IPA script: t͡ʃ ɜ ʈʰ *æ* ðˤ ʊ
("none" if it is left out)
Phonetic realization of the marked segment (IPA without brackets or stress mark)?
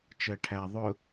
æ